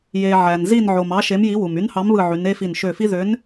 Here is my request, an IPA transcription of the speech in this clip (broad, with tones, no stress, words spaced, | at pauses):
je˩ ʕæ˩nzi˧˩nʕo˩m ɑ˨˥ʃe˨˥mji˨˥wu˩m y˨˥nhɑ˨˥mβɯ˧˩ʕy˩˧n e˦fi˧˩n ʃø˧˩fi˦ ðø˨˥n